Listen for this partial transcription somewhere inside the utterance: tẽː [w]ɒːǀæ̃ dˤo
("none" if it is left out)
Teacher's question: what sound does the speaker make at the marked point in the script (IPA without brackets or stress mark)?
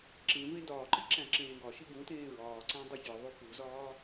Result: ɹ